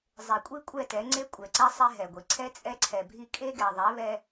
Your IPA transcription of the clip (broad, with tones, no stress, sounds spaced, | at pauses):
zˤ e˨ kʷʼ i˦ kʷʼ ɛ˦˨ t ɛ˨˦ ŋ͡ǀ e˦ kʷʼ ɛ˨ ǀ ɛ˦ sˤ e˦ ɦ ɛ˨ ɡʷ i˨ ǀʰ ɛ˦ t͡sʼ ɛ˦ ǀʰ ɛ˨ bʱ i˦ kʼ e˦ ɡ ɛ˨ ðˤ ɛ˨˦ β ɛ˦